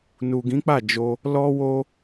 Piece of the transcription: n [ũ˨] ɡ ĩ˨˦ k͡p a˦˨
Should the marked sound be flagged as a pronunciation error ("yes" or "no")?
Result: yes